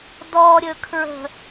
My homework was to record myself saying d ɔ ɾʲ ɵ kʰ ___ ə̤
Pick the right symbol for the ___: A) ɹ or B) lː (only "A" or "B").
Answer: A